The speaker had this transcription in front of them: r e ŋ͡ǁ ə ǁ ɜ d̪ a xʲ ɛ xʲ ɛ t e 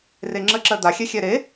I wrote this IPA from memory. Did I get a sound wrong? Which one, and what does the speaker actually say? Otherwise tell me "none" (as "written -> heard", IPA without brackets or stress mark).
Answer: t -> ɾ